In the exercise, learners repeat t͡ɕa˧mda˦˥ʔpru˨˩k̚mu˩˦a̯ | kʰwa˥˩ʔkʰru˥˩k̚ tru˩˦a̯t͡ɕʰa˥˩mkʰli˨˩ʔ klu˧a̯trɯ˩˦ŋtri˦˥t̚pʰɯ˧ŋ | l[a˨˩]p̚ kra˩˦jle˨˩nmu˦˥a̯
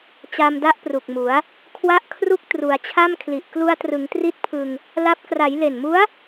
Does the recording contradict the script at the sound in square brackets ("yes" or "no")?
yes